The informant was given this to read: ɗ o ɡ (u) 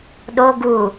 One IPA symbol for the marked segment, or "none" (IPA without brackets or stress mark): u